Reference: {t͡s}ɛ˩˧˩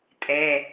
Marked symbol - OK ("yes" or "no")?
no